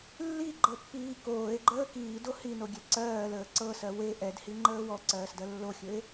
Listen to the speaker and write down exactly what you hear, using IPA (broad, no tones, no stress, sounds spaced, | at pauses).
lː i ɡ͡ǃ ɤ pː iː k oː e̯ ɡ͡ǃ əː k iː d o h i n o ɡʲ ɛ ǀ ɜː l əː ǀ ɤ s ɜ w e ʔ ɛ d h i ŋ͡ǃ əː w ɔ ǀ ɜː s d ɜ lː o xʲ ɵ e̯